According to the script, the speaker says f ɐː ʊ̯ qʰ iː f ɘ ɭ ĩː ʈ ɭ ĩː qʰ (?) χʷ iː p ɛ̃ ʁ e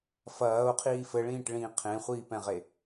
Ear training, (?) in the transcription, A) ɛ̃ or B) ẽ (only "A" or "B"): B